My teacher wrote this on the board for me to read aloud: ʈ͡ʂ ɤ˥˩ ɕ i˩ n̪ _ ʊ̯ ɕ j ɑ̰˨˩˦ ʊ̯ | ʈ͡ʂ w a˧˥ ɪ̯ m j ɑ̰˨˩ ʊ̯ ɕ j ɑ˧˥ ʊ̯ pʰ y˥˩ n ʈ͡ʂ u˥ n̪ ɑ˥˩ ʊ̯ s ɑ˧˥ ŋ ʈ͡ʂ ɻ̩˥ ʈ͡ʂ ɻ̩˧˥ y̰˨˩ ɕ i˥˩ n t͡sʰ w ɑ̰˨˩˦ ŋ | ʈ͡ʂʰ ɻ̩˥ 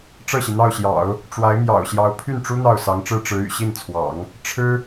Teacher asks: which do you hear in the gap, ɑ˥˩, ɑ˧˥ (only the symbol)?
ɑ˥˩